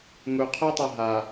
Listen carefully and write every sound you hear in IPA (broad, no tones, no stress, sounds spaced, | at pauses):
ŋ u qʰ ʌ tˤ a ɦ a